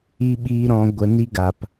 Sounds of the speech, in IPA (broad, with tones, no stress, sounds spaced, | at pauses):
i˦ ɓ iː˦ ɾ ɔ̃˧ ɡʷ ə˧ n i˦ ɡ a˦ p